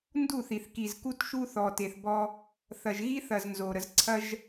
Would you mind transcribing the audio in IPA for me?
n d u˦˨ θ i˨ θ k i˨ z k u˦ t ʃ u˦ θ ɔ˨ t e˨ θ b ɔ˦ | θ ɐ˨ ʒ ɣ i˦ θ ɐ˨ z n z o˨ ɾ ə˨ z ǀʰ ɐ˦ ʒ

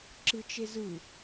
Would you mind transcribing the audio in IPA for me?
ǁ ɯ t͡ʃ e z ɯ

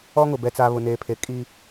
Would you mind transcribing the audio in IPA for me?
ɔ˦ ŋ ʊ˨ b ɛ˨ t͡s a˨ β ʊ˨ n eː˨ pʰ e˨ kʼ i˦

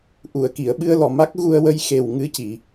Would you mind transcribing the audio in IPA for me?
ʔ u˨˩˨ ə̯ k i˨˩˨ ə̯ ɓ ɨ˧ ə̯ l ɔ˨˩ m a˦˥ k̚ ɣ u˧ ə̯ w ə˧ j x e˨˩ w ŋ ɨ˧˥ c i˨˩˨

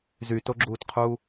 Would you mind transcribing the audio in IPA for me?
z y t o ɡ͡ǁ uː t qʰ uː

